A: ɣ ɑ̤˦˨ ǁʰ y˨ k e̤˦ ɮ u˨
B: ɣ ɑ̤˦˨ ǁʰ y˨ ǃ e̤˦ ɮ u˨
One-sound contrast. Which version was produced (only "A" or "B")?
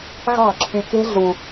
A